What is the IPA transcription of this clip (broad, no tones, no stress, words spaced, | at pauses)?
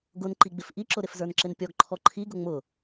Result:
ɡʊnǃiɡ͡bɪf ʔiǁʊ ɾɪfzə˞nǁɪnpʲɔɡ ǃʰɔǃʰiɡʊ ŋ͡mʊ